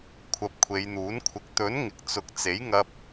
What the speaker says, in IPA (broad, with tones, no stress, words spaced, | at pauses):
kʷʰɐ˨p̚ kʷʰe˨˧jn̪uː˨˥n kʷʰɪ˨k̚t̪ɵ˨˥n ŋɪ˨k̚t͡sʊ˨k̚ t͡se˨˥jŋɐ˧p̚